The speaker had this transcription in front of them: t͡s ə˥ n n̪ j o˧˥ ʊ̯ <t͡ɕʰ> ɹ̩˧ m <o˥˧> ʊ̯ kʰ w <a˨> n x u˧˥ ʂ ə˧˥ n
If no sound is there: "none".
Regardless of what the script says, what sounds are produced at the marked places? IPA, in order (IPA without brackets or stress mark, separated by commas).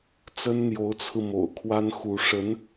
t͡sʰ, o̰˨˩, a˥